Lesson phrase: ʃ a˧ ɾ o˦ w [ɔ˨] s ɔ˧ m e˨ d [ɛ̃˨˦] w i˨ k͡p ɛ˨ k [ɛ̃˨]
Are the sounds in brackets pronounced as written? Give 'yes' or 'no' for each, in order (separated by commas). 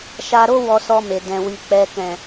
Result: no, no, yes